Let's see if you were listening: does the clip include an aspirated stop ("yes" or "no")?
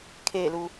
yes